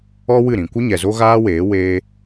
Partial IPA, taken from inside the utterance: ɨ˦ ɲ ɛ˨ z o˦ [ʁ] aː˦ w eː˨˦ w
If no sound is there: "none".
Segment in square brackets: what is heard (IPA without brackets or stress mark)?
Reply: ɣ